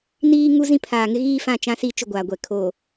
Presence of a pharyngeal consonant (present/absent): absent